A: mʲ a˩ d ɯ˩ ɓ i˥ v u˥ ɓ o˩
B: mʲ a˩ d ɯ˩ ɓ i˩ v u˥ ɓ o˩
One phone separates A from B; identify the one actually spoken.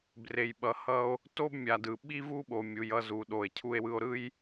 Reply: A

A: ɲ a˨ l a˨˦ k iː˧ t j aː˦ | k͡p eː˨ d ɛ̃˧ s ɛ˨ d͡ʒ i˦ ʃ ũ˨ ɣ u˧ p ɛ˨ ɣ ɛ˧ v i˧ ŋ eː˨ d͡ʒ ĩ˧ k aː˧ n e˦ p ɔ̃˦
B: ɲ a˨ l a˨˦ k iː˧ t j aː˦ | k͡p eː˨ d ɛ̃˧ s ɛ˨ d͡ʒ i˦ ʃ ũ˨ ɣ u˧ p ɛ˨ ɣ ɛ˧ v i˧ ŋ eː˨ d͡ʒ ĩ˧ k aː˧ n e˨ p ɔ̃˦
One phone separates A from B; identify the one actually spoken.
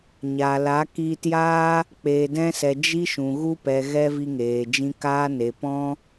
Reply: B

